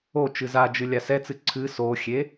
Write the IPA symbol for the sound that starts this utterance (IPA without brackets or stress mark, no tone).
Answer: o